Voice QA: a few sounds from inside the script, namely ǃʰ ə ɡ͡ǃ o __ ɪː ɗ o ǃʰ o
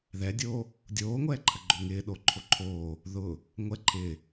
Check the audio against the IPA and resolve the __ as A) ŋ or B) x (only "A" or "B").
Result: A